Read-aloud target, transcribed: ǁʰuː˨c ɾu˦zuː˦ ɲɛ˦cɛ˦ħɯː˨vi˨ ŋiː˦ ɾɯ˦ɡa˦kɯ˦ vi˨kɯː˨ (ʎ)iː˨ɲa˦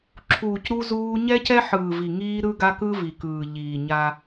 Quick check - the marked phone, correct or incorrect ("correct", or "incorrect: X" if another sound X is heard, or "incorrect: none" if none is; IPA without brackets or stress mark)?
correct